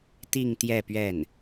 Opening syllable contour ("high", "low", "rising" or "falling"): falling